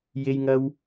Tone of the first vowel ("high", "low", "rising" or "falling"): high